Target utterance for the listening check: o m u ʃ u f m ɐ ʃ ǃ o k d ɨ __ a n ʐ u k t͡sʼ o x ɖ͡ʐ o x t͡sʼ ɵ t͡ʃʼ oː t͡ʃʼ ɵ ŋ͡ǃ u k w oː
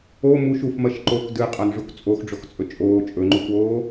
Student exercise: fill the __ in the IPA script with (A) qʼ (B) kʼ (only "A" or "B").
A